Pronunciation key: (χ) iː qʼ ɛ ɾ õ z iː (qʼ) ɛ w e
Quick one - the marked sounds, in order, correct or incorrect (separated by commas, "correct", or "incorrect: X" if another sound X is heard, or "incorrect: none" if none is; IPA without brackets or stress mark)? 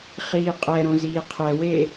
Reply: correct, incorrect: qʰ